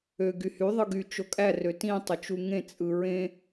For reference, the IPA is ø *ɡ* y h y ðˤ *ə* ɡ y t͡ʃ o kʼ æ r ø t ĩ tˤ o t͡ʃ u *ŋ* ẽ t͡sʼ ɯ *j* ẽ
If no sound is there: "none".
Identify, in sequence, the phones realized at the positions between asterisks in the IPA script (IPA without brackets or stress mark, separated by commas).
ɡ, ɯ, ŋ, ɹ